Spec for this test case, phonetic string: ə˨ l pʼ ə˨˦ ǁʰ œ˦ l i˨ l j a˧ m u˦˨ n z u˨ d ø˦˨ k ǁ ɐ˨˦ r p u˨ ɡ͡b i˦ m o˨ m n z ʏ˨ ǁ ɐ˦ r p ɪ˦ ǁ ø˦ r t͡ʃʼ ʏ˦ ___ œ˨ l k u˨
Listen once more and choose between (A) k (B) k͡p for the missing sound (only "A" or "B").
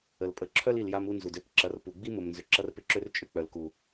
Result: B